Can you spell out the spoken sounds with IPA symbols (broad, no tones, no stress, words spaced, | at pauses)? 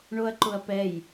ɳoɐ̯ǃʊɐ̯pɛj